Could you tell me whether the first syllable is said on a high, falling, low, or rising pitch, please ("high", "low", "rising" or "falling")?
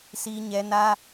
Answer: high